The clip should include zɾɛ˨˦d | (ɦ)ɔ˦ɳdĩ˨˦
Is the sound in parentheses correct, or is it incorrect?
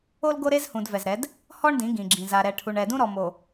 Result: incorrect